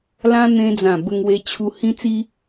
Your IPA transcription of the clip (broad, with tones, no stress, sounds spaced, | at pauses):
l ã˧ n̪ ẽ˧ d͡z ã˨˩ b ə˧ ŋ w e˧ t͡ɕʰ u˧ h ĩ˧ t͡s i˧